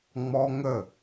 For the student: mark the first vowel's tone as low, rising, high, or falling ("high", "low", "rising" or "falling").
high